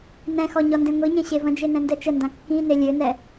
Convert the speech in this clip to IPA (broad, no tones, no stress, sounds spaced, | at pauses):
n ɛ̃ x ɔ ɲ ɔ n d ẽ ŋʷ i ɲ ẽ ɕ e v ə̃ d͡ʒ e n ɛ̃ n d ɛ t͡ʃ ə n d ã kː ĩ n e lʲ ø n ɛ